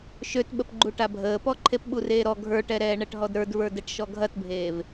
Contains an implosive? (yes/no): yes